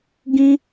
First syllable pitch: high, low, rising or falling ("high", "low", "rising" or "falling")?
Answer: high